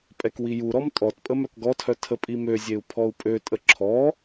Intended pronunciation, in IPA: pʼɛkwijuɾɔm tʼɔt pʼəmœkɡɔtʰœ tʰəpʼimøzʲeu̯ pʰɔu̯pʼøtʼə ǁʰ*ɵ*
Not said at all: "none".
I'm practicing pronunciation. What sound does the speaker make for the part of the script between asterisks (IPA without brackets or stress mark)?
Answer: ɔ